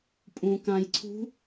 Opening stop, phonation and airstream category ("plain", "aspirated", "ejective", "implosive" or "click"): ejective